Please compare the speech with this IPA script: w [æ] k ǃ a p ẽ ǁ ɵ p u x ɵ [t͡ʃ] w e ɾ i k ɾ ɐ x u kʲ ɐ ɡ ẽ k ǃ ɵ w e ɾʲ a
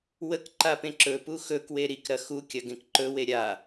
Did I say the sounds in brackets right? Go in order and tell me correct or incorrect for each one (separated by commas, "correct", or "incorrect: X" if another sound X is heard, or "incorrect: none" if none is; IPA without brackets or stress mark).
incorrect: ə, incorrect: k